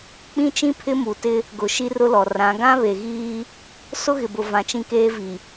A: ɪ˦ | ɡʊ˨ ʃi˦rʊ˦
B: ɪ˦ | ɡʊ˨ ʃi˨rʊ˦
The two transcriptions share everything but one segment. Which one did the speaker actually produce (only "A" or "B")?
A